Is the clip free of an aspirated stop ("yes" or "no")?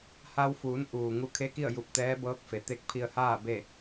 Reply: no